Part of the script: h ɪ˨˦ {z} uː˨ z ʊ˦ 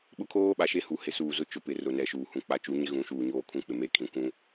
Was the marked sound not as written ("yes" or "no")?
yes